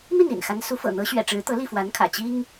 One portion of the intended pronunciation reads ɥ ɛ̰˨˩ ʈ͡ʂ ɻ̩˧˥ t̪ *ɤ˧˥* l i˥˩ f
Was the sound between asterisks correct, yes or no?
yes